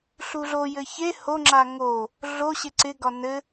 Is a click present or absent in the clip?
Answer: present